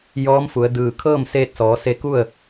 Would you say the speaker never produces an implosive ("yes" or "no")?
yes